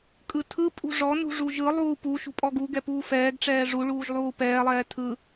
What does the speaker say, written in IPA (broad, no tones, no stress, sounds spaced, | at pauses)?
kʼ ɯ tʰ ɯ pʼ ṳ ʐ ɔ n ṳ ʐ u ʒ ɯ lˠ uː p u ʃ ṳ pʼ ɔ ɡ u ɡ ɛ p uː f ɛː ɡ ʈ͡ʂ ɛː ʐ u ɭ uː ʒ lˠ uː p ɛː lˠ ɛː tʰ ɯ